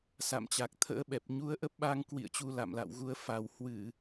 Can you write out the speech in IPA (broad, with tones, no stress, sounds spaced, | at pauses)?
s a̰˧˨ m t͡ɕ a˨˩ k̚ t̪ʰ ə̰ː˧˥ ɓ ɛ˨˩ p̚ ɲ u˨˦ ə̯ ʔ ə˦˥ p̚ ɓ a˧ ŋ k w ḭ˧˨ ə̯ t͡ɕ u˧ l a̰˧˨ m l a̰˧˨ w ɣ u˧ ə̯ f a˨˩ w h w ɨ˧˩˨